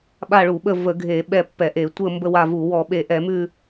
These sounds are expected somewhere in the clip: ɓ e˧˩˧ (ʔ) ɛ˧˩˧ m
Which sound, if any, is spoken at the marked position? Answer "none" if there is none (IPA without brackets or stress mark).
ʔ